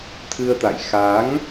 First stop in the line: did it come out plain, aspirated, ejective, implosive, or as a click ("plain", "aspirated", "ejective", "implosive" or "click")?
aspirated